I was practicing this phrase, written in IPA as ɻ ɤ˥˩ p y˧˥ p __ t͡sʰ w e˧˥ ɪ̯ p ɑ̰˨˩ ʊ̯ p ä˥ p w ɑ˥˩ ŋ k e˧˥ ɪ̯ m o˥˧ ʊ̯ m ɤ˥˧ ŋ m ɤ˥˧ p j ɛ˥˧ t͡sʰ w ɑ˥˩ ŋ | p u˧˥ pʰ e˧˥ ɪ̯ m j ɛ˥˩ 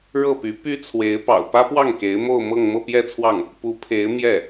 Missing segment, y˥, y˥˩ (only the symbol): y˥